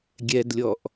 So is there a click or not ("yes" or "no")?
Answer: no